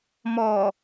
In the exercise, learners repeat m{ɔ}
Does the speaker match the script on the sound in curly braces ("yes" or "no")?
yes